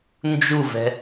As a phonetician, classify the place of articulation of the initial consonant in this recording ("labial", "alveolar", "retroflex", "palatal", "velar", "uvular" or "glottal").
alveolar